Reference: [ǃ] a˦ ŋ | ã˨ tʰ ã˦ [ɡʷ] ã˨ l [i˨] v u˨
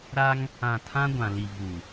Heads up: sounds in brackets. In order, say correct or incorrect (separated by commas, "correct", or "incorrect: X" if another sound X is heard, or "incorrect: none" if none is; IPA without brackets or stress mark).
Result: incorrect: ɾ, correct, correct